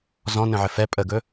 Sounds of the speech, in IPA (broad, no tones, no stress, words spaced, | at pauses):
zɔ̃ nə̃ʕɘfɛ pʼəɡɵ